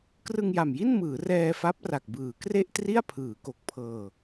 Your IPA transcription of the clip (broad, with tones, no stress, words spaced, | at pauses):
krɯ˧ŋja˨˩mji˥˩nmɯː˩˦ rɛː˧fa˦˥p̚ra˨˩k̚bɯː˩˦ kre˥˩ʔtri˥˩a̯ pʰɯː˩˦ko˨˩k̚pʰɤː˧